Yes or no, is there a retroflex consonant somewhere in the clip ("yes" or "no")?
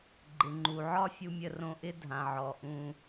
no